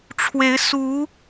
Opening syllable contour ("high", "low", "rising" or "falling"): rising